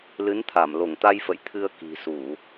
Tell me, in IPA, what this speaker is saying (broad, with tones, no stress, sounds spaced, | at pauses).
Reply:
l ɨ˨˦ n t̪ʰ a˧˩ m l o˧˩ ŋ t̪ a˧ j f ə̰˧˨ j t̪ʰ ɨ˧ ə̯ k i̤˨˩ s u˧˩˨